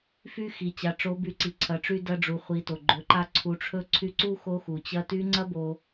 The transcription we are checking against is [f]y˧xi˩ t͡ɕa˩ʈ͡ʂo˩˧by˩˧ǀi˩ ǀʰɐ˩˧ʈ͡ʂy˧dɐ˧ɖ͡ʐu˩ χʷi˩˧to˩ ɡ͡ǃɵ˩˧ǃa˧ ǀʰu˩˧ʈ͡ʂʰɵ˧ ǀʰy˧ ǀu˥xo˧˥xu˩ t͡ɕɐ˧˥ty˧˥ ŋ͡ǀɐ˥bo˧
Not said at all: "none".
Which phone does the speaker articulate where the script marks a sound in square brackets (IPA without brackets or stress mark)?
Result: f